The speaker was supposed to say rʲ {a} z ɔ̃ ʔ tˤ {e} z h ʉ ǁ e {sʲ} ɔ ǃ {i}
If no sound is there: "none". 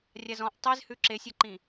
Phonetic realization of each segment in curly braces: a, e, sʲ, ĩ

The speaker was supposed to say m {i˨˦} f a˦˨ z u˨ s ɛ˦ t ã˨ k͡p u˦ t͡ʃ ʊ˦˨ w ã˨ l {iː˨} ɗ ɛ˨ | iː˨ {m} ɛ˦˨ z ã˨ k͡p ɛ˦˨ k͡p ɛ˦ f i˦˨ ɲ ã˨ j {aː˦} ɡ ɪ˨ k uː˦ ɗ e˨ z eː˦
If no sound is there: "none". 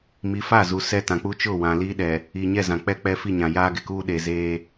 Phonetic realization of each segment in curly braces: i˨˦, iː˦, ɲ, aː˦

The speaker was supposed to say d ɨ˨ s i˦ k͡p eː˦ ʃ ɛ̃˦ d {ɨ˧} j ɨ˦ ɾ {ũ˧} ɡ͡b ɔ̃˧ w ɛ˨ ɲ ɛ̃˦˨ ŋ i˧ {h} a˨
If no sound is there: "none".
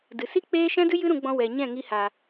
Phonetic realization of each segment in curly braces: ɨ˦, ũ˧, h

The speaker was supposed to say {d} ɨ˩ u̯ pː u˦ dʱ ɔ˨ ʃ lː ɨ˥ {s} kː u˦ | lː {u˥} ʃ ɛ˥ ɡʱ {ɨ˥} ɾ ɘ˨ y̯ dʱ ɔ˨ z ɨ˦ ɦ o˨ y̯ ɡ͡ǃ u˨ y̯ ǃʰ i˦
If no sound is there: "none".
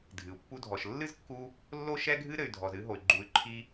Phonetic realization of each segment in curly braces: dʱ, z, o˥, ɨ˥

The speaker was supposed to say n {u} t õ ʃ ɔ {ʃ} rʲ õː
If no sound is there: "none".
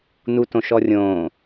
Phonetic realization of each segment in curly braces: u, none

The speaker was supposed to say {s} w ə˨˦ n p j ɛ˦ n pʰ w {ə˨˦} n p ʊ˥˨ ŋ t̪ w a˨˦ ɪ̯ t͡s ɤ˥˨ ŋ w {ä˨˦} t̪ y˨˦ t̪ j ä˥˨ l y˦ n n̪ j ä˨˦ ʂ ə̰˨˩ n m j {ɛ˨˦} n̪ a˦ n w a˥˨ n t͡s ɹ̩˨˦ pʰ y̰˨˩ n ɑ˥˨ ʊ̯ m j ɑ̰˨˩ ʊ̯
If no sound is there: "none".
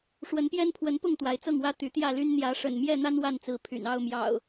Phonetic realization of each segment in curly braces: ʂ, ə˨˦, ä˦, ɛ˥˨

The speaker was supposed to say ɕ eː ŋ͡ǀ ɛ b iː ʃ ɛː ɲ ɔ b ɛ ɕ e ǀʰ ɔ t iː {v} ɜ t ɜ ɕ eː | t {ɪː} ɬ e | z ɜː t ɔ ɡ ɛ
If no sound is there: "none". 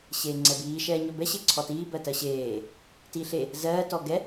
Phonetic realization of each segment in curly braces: b, iː

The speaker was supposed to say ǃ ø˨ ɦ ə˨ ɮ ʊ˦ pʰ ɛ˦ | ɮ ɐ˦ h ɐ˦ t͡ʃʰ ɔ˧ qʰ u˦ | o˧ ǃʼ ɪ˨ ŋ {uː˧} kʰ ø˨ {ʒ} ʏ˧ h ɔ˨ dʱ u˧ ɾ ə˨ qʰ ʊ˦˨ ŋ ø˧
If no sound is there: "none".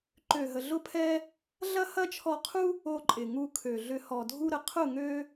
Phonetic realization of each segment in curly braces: u˧, ɮ

